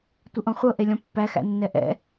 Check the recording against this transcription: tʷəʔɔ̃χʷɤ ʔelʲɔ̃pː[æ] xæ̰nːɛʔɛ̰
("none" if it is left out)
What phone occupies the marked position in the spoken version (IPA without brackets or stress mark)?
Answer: æ